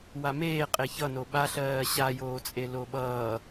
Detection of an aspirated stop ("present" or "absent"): absent